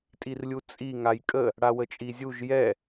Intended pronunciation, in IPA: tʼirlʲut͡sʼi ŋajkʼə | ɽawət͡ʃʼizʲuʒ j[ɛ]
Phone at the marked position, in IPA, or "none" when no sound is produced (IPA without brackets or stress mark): ɛ